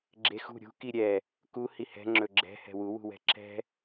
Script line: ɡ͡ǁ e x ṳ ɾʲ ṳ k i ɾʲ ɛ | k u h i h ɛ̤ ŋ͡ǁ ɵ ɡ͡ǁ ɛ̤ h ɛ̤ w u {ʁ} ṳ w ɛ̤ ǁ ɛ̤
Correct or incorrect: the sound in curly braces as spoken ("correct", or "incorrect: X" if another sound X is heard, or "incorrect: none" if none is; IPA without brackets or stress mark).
incorrect: w